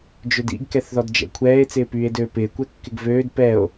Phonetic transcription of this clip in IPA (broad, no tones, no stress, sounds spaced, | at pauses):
d͡ʒ ø d ḭ ɡ k ɛ θ ð ɔ d d͡ʒ ɛ̰ kʷʰ ɛː e̯ t͡s ɪː p yː e̯ d øː p ɪː kʷ ɛ kː ɪ ɡ v øː d p ɛ o̯